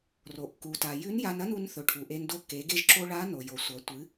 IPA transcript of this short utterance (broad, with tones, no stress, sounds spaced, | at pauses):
r o˩ ʔ k u˩ t a˩ j ʉ˧˥ n j a˧ n ɐ˥ n u˧ n θ ɵ˩ ʈʰ u˩ ʔ e˧ n d o˧˥ k e˩˧ ɡ e˧ ʒ ǁ o˧ ɭ a˧˥ n o˩ j o˩ sʷ ɐ˩˧ tʷ ɨ˩˧